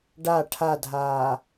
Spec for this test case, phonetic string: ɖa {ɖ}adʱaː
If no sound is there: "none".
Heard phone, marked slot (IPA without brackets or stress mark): ʈʰ